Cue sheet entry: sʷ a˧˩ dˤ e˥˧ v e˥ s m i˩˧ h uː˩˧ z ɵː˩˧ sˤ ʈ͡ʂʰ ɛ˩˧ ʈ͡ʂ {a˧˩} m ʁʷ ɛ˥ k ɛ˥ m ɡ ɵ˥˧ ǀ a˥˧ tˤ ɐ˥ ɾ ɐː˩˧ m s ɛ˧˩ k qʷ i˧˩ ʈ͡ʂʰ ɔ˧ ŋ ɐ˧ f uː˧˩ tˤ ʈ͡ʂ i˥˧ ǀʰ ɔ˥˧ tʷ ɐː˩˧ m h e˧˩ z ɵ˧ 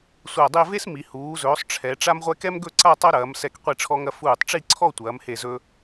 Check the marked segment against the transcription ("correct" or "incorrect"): incorrect